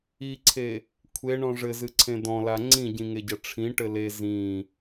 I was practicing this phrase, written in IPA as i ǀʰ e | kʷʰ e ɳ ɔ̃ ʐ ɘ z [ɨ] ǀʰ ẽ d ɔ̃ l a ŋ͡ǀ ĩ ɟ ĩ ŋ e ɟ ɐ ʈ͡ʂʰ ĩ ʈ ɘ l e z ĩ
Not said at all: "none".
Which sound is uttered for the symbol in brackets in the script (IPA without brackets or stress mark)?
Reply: ɨ